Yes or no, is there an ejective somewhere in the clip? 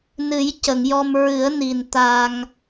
no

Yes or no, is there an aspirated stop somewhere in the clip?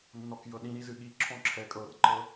yes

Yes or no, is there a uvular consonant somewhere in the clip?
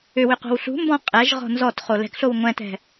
yes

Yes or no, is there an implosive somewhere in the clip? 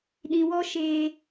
yes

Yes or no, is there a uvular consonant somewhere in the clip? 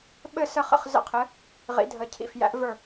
yes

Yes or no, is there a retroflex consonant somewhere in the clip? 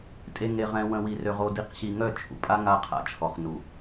no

